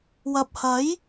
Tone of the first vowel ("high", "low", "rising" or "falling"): low